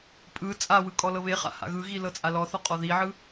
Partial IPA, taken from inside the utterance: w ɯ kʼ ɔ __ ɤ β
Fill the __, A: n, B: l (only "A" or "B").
B